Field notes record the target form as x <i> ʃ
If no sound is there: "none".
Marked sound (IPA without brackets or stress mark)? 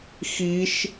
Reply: i